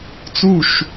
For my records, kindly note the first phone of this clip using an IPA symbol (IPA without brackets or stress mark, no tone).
t͡s